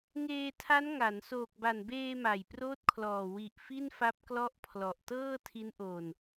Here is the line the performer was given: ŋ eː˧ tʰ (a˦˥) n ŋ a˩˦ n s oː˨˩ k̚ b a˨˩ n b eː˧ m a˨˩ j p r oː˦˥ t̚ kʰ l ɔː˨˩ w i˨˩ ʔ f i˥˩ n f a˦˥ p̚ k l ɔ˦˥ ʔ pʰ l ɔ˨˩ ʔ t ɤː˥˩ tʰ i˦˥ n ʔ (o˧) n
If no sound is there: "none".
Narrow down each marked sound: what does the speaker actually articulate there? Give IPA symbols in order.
a˦˥, oː˧

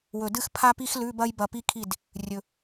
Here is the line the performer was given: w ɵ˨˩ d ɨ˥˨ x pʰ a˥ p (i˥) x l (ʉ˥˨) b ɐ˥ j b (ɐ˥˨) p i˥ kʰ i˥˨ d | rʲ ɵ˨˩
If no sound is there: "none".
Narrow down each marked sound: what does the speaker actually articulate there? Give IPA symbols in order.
i˥, ʉ˧˥˧, ɐ˥˨

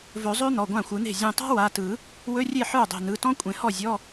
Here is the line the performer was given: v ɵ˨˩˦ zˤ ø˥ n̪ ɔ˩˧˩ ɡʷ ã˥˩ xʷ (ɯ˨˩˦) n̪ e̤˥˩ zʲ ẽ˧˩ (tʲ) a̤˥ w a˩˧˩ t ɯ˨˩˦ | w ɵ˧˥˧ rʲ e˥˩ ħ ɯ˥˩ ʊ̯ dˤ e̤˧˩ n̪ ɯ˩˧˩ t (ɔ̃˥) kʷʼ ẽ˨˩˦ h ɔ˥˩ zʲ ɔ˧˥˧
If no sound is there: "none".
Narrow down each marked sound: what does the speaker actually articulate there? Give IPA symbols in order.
ɯ˨˩˦, tˤ, ɔ̃˥

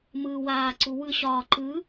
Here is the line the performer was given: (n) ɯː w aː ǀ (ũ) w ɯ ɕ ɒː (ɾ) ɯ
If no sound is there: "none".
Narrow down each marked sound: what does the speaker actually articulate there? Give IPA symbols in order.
m, u, ǃ

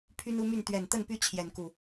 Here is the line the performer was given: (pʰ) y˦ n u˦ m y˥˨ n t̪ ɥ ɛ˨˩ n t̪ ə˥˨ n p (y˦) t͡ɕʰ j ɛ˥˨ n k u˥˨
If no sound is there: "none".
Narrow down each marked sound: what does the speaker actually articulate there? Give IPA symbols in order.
pʰ, y˦

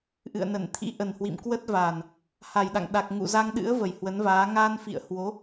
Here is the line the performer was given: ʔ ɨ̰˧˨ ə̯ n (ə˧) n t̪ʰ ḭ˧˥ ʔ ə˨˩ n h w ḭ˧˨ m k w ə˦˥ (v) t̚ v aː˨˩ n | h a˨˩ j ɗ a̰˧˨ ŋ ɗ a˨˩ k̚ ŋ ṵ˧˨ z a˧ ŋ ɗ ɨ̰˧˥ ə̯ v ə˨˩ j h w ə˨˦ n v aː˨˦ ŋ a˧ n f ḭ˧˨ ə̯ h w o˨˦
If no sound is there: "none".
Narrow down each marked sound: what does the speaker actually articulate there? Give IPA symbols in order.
ə˧˩, none

